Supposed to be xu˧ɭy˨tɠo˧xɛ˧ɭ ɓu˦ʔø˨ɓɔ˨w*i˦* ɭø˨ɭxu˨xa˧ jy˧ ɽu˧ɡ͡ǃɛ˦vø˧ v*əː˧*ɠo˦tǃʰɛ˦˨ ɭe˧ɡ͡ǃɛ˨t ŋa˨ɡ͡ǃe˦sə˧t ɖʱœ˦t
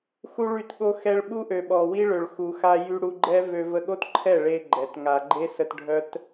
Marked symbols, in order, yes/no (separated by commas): yes, no